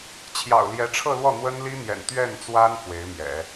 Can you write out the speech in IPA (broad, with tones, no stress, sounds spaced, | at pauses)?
t͡ɕʰ j ɑ̰˨˩ ʊ̯ l j ɛ˧˥ ʈ͡ʂʰ ɤ˥˧ l w ɔ˥˩ n̪ w ə˥ n l i˥ n̪ j ɛ̰˨˩ n t̪ ɥ ɛ˥˩ n t͡s w a˥ n f w e˧˥ ɪ̯ m j ɛ̰˨˩˦